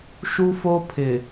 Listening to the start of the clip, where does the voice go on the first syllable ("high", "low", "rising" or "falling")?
high